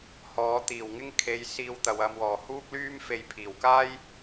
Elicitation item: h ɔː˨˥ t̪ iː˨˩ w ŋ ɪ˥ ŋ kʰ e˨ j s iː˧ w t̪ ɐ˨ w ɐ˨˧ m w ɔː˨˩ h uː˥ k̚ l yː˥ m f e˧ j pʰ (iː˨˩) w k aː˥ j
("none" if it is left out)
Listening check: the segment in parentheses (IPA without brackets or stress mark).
iː˨˩